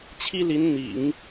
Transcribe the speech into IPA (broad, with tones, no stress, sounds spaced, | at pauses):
t͡ɕʰ i˥ l i˧˥ n n̪ ḭ˨˩˦ ŋ